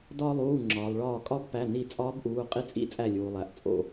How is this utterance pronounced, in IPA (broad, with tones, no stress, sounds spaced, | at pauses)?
d ɒ˧ lˠ uː˩˧˩ ŋ͡ǁ ɒː˩ lˠ ɭ ɒː˧˩ kʼ ɒ˧˥ b p æ˩˧˩ n i˧˩ t͡sʼ ɒː˧˥ b ʔ uː˩˧˩ qʼ i˧ t͡sʼ ḭ˧˥ t͡sʼ æ˧˩ lʲ uː˩ lˠ æ˩ ʔ t͡sʼ o̰˧˩